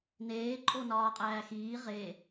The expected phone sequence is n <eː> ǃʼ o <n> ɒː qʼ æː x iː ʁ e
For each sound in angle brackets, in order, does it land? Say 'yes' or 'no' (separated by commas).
yes, yes